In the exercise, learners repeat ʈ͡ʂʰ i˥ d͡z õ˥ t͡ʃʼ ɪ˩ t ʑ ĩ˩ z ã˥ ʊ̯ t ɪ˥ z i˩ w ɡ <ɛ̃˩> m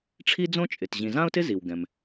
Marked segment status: correct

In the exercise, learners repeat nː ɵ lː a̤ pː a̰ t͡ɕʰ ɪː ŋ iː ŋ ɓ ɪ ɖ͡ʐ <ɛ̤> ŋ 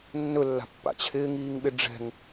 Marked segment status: correct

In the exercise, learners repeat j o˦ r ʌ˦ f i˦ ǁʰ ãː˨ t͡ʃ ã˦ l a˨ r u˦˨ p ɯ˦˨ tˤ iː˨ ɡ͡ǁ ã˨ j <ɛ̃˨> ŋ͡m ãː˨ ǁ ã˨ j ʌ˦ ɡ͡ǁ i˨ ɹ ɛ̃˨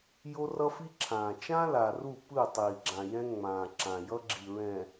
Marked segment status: incorrect: ɛ̃˦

